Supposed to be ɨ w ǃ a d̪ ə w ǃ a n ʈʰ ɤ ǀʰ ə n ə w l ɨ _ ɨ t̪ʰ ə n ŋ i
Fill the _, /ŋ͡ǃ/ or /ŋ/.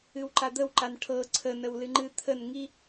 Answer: ŋ͡ǃ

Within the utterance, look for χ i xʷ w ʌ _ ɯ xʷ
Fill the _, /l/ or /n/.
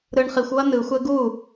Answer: n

